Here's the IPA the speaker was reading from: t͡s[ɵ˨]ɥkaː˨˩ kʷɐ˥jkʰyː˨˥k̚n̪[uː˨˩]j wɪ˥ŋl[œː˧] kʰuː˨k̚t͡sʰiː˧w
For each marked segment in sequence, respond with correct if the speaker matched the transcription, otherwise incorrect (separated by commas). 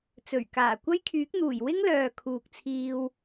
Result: incorrect, correct, incorrect